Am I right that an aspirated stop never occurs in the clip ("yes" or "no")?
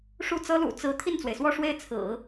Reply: no